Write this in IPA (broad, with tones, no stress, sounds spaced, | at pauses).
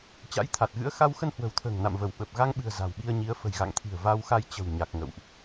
t͡ɕ a̰˧˥ j t̪ʰ a˨˩ t̚ ɣ ɨ̰˧˥ ə̯ x a˧ w x ə˧ n h w ə̤˨˩ w t̪ʰ ə̤ː˨˩ ŋ n a̰˧˨ m v ə˧˩ w ɓ ə˨˩ p̚ ɣ a˧ ŋ ɓ ɨ̤˨˩ ə̯ z a̤˨˩ w ɓ i˧ ə̯ ɲ i˨˦ ə̯ f ə̤˨˩ j ɣ a̰˧˨ ŋ t̪ʰ i̤˨˩ ə̯ v a˧ w x a˧ j t͡ɕ ə̤˨˩ w ɲ a˨˩ k̚ ŋ ə̰˧˨ w ʔ